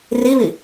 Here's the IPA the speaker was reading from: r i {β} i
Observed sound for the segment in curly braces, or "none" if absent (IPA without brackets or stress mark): β